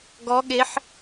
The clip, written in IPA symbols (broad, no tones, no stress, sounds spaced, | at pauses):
ɡ ɔ ɠ e ħ